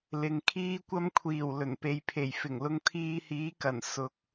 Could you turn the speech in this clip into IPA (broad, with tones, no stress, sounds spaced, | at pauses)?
l ɪ˨ ŋ kʰ iː˧ kʷ ɐ˧ m kʷʰ iː˨˩ w l ɵ˨˩ n p e˨ j pʰ e˨˩ j f ɪ˨˩ ŋ l ʊ˧ ŋ t̪ʰ iː˧ h iː˨˥ k ɐ˨˩ n s ʊ˨ k̚